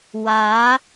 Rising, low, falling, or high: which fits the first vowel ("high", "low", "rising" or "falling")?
rising